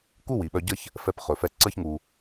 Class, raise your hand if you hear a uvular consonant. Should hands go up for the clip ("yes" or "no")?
yes